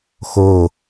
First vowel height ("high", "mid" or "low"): mid